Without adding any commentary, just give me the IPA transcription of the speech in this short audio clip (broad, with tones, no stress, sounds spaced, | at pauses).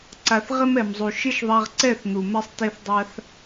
ǀ a˨ θ ʁ ɪ˦ m ɛ˨ m zˤ u˨ ʃ ɪ˦ ʃ ðˤ a˧ ʁ ǀ ɛ˦˨ θ n̪ u˨ m ɛ˦ sˤ t e˧ θ dˤ a˧ θ